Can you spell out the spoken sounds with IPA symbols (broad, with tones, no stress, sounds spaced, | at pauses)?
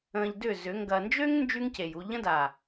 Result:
ə̃ː˧ ʎ d ʏ˦˨ z ʏ˨˦ ŋ ɡ ɐ˧ n d͡ʒ ø˦ ŋ n d͡ʒ y˦ ŋ c e˨ j u˧ ʎ ə̃˦ d a˨